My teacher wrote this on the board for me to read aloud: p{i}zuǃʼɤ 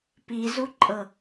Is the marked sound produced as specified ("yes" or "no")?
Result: yes